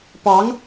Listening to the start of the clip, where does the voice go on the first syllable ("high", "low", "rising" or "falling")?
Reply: rising